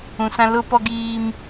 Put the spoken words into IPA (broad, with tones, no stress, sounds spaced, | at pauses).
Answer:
ũ˨ s ã˦ l ʊ˦ p ɔ˦ ɡ iː˦ m